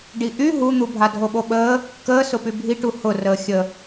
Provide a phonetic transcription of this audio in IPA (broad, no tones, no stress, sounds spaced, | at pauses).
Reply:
ɖ i ʔ y ɦ u n̪ u bʱ a dʱ o ɓ o ɓ əː | k əː s ʊ p y bʱ i ʈ u h ʊ r əː xʲ ə